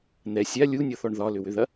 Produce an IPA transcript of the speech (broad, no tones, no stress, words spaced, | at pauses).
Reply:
n̪ɛ sʲa lʲunʲɔθɔɳ ðɒlʏwʏðɐ